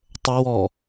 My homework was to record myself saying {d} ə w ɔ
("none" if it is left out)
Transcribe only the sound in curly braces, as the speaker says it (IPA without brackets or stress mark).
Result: tˤ